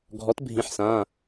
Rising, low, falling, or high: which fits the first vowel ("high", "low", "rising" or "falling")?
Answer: rising